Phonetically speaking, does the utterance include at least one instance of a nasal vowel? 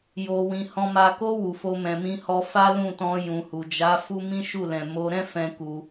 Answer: yes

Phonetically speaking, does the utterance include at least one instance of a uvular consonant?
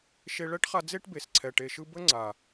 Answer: yes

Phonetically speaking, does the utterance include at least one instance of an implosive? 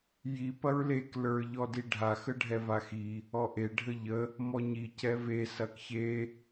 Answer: no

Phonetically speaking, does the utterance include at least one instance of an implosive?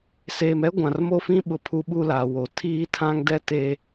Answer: yes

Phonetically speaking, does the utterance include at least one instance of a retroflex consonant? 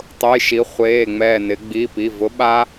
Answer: no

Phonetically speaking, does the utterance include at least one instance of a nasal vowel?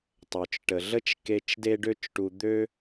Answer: no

